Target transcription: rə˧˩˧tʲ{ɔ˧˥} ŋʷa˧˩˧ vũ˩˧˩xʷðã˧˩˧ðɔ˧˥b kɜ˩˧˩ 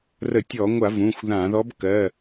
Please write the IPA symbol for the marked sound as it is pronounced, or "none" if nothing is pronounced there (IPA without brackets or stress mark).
ɔ˧˩˧